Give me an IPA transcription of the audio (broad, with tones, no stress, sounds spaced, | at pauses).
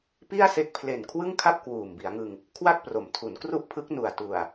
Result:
p i˥˩ a̯ s e˦˥ k̚ pʰ l e˨˩ n kʰ w ɯ˥˩ ŋ kʰ a˥˩ p̚ k w uː˨˩ m b i˩˦ a̯ ŋ ɯ˧ ŋ | kʰ w a˥˩ k̚ p r o˩˦ m tʰ u˩˦ n k r u˥˩ ʔ pʰ ɯ˦˥ k̚ n u˨˩ a̯ t u˨˩ a̯